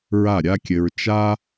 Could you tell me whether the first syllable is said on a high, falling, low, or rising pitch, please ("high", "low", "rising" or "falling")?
falling